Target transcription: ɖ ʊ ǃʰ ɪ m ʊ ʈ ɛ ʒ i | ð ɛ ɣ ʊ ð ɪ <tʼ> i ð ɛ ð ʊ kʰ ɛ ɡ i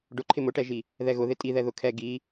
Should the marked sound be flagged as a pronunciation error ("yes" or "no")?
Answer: no